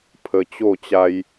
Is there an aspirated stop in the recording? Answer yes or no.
yes